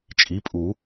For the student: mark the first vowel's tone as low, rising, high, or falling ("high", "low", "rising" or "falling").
rising